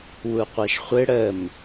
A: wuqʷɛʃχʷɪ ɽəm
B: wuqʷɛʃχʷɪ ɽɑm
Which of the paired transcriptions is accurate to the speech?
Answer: A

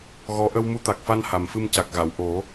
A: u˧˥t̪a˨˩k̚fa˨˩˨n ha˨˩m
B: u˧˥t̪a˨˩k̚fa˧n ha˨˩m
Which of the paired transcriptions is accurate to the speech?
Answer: B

